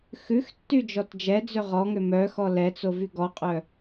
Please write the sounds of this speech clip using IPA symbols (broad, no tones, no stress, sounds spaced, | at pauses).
x ʉ x tː y d͡ʒ ɔ t d͡ʒ ɛ d͡z ø ʁ ɔ ŋ ø m œ x ɔ l ɛ t͡s o v y ɡ ɔ qʼ œ